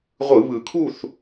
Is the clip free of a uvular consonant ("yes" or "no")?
no